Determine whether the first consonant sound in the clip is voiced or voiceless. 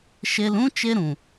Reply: voiceless